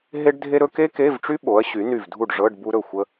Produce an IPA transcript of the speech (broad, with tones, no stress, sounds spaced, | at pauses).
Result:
ɦ e˥ ɖ dʱ e˥ ɾ ɵ˥ k e˥ k e˧˥˧ v ʈ͡ʂ y˥ ɓ o˩˥ ɐ̯ ɕ y˩˥ n y˧˩ v dʱ u˥˩ ɖ ʐ ɤ˧˥˧ ɖ b u˥ ɾ ɵ˥˩ xʷ ə˥